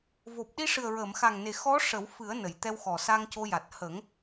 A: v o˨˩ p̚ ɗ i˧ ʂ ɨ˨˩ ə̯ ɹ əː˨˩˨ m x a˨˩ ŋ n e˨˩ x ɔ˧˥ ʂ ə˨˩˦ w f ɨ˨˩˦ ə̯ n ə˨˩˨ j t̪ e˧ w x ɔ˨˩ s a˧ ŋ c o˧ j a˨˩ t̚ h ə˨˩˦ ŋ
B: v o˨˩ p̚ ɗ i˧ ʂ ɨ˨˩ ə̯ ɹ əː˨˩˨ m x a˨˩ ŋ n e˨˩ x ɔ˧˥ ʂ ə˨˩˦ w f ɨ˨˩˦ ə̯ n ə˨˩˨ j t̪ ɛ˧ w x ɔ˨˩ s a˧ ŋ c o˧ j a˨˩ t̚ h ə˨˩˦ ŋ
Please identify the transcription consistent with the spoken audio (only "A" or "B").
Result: B